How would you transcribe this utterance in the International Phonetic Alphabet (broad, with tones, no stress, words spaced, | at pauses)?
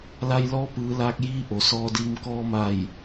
la˧j lɔː˧˥pɯː˩˧laː˧k̚jiː˧˥ ʔo˩sɔː˧diː˧m kɔː˧ma˧˩j